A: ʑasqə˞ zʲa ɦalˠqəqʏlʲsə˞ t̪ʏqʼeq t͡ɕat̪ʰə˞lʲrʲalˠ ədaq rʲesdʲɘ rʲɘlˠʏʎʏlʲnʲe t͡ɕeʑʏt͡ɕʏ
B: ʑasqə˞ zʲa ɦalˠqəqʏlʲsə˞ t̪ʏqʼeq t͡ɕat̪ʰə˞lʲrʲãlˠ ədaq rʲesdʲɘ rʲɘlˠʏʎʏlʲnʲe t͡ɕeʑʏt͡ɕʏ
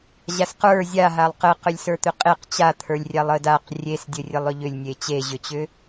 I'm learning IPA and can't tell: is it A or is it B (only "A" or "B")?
A